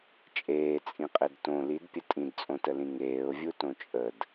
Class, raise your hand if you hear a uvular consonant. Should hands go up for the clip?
yes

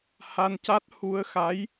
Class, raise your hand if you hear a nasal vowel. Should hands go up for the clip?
no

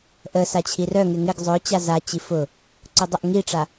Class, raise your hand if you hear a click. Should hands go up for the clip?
yes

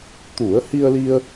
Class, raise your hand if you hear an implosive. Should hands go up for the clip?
no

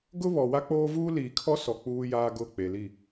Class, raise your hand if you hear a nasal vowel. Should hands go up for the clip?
no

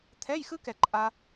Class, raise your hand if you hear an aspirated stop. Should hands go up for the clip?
yes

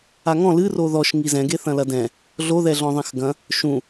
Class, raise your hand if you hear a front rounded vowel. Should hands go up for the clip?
no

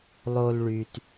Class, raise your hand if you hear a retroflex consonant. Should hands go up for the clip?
yes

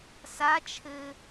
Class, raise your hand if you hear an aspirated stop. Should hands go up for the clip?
yes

